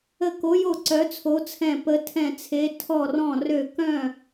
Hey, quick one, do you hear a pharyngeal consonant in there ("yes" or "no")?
no